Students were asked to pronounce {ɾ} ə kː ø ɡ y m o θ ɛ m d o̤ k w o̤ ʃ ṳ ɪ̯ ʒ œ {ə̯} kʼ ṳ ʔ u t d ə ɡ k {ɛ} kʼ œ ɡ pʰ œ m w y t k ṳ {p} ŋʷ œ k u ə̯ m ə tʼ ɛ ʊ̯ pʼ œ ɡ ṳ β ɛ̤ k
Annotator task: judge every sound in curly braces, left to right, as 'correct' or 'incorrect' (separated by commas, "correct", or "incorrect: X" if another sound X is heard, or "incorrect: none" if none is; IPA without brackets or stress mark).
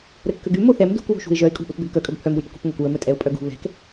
correct, incorrect: ɪ̯, incorrect: œ, correct